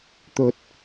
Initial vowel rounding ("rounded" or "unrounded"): rounded